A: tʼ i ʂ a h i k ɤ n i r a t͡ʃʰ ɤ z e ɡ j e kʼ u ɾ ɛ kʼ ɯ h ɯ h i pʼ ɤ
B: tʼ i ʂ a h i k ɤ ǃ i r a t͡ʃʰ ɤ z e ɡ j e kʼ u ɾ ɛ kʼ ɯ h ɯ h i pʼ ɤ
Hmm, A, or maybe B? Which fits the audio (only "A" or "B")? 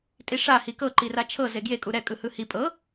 B